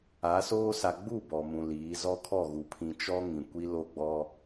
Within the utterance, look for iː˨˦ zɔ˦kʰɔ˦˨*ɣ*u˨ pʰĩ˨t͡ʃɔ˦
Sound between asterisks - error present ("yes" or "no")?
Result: no